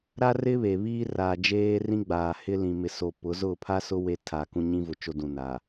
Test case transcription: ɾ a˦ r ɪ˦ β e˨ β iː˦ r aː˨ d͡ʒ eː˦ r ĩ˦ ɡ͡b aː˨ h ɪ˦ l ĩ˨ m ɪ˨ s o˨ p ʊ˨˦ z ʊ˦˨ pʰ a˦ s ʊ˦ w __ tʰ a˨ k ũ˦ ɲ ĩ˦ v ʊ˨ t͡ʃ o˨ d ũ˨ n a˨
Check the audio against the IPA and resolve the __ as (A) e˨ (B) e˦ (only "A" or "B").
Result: B